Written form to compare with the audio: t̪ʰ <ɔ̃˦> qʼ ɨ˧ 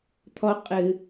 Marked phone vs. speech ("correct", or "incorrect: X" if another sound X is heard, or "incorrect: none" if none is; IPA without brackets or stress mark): incorrect: ɔ˦